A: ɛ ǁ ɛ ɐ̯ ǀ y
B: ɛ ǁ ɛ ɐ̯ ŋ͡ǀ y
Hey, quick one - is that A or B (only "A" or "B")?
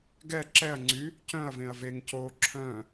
B